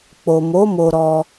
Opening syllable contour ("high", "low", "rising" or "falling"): low